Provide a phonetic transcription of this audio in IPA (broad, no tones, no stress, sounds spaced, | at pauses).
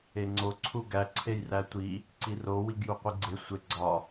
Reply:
e ŋ͡ǀ o ǀʰ u ɡ æ ǀʰ e j r æ tʷ i | ǀ i r o w i ɡ j u qʷ i ɡ͡ǀ e sʷ e ɡ͡ǀ ɒ